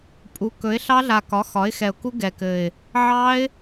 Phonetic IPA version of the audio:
pʼ u˩˥ k ɵ˩˥ ɪ̯ ɬ ɑ˦˥ ɮ a˨˩ k ɒ˩˥ x ɒ˩˥ ɪ̯ x ɛ˨˩ ʊ̯ k u˦˥ ɡ ɛ˨˩ k ɘ˨˩ ɪ̯ | ʕ ɑ˦˥ ɪ̯

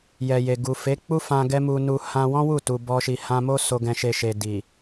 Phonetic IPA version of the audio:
j ɛ˨ j e˨ ɡ u˨ f e˨˦ k͡p u˦ f ã˧ ɡ ɛ˦ m u˧ n u˧ h ã˦ w ɔ̃˦ w u˦˨ t u˧ b ɔ˦ ʃ i˧ h ã˧ m o˦ s o˧ ɡ ɛ̃˧ ʃ e˧ ʃ e˨ d i˨

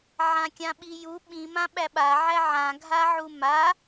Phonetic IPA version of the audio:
ʕ ã kʲ ã ɓ i j u ɓ ĩ m ã ɓ æ ɓ a ʕ æ ʕ ã ɡʱ a ʕ u m a

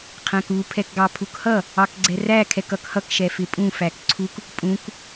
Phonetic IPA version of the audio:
qʰ æ̃ k u pʰ ɛ k ɡ ɑ pʰ u k h ʌ | ɑ k ɡ͡ǀ ɛ r æ kʰ ɛ k ʌ k h ʌ k ʃ ɛ f ɪ pʼ ũ f æ k ǀʰ u k | pʼ ũ k

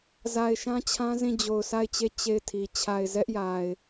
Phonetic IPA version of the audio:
z a˨ ɪ̯ ʃ ã˦ t͡ɕʰ ã˦ z ĩ˦˨ d͡ʑ o˨ ʊ̯ sʰ a˦˨ ɪ̯ t͡ɕ e˦˨ t͡ɕ e˦˨ ɪ̯ tʰ i˨ t͡ɕʰ a˨ ɪ̯ z ɛ˦ ʔ j a˨ ɪ̯

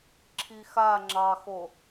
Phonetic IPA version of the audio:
ǁʰ i x a ŋ͡ǁ ɑ x o

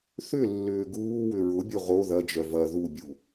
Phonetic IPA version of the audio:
θ ʏ lː ʏː ɡ uː w ʏ ɹ ʊ bʲ o ʁ o ð ɐ d͡ʒ œ v ɐ ð u bʲ u

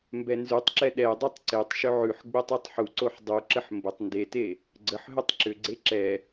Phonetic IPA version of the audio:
m b ɛ n z ʉ tˤ ǁ ɛ ɗ ɛ dˤ e tˤ ǀ e tˤ ʃ ʏ ʕ ʉ ħ ɡ͡b e tˤ ɛ tˤ ħ u ǀ o ħ dˤ ʉ ǁ ə ħ m b ə tˤ n d e t e | ɡ͡ǀ ə ħ ɦ ʏ tˤ ǁ ʏ ɡ͡ǀ e ǁ ɛ

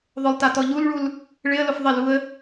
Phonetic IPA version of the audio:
ðˤ ʊ lˠ t a t ɔ ʎ u l ɭ u l | ɭ ɪ ə̯ l ʊ f ðˤ ɪ l u ə̯

